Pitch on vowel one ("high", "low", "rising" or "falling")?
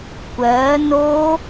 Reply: rising